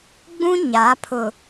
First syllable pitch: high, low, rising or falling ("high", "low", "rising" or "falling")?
high